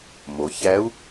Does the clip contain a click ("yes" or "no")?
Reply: no